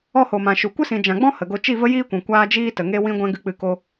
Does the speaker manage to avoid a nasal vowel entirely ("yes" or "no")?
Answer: no